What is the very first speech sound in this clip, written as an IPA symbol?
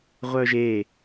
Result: ʁʷ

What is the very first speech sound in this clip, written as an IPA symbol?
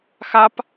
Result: x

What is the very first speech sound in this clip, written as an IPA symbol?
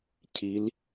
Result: cʰ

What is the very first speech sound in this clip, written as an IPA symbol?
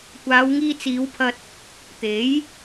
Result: kʷ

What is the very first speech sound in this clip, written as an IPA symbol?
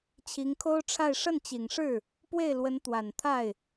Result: t͡ɕʰ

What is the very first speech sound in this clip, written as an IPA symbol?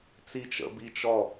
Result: t͡s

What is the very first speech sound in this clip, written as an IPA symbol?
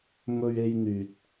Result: m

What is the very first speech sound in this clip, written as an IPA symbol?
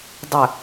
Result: dˤ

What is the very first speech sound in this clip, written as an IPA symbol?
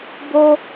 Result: b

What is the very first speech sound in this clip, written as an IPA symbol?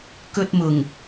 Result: k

